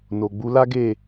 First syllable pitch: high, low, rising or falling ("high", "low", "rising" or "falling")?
low